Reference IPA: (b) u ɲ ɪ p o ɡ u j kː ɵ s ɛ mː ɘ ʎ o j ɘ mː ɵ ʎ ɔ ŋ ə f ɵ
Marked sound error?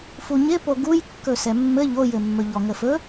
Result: yes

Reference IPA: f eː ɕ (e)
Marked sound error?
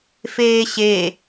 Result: no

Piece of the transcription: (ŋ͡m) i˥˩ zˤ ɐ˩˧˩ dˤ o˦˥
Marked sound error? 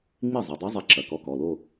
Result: no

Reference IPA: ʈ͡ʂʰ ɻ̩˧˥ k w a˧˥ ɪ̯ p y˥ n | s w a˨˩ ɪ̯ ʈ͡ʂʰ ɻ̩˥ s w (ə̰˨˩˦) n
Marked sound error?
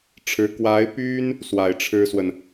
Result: yes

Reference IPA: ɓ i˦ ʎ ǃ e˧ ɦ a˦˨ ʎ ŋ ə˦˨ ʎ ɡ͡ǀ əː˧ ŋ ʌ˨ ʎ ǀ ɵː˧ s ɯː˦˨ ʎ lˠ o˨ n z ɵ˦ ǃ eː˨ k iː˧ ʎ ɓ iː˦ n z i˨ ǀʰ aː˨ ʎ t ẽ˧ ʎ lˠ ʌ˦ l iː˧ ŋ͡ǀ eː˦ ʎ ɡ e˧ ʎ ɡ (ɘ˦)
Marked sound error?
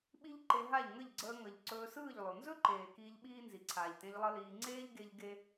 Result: yes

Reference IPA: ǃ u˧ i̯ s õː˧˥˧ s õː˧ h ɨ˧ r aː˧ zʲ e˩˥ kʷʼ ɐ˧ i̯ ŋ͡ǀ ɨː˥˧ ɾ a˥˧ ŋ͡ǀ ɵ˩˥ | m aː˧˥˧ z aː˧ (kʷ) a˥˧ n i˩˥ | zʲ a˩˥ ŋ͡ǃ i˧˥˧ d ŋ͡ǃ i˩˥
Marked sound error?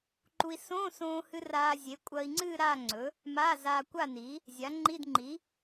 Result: no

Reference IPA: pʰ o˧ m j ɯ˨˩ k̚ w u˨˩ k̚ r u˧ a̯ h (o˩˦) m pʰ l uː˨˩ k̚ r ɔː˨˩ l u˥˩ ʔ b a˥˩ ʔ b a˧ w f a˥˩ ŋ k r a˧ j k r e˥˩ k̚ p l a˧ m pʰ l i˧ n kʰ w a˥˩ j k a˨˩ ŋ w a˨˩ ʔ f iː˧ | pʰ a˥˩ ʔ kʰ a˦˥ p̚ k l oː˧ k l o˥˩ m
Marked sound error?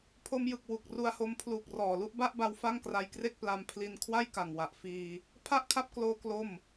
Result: yes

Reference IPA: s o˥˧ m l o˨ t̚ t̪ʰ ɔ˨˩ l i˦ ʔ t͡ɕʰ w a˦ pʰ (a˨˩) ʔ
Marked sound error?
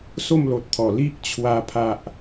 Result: yes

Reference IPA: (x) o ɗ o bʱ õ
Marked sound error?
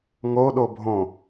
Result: yes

